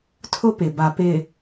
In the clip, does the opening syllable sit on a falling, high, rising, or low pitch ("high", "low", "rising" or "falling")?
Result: high